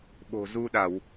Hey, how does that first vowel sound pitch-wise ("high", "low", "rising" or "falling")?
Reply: low